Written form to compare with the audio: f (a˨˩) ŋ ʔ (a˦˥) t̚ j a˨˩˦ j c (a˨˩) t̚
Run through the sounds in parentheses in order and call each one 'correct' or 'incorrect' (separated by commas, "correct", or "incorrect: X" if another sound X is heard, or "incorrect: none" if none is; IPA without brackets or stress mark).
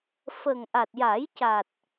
incorrect: ə˨˩, incorrect: a˨˩, correct